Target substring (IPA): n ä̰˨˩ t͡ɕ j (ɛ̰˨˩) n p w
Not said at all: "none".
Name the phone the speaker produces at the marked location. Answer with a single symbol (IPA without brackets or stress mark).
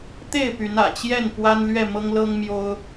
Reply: ɛ˥˨